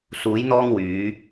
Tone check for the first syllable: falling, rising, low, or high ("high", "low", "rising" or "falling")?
rising